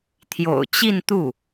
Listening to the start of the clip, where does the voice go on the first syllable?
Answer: low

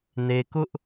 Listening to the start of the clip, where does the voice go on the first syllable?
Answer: high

